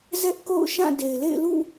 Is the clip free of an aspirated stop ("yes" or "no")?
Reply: yes